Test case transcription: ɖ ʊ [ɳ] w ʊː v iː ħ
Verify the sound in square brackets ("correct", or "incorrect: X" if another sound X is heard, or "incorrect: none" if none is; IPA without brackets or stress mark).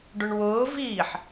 correct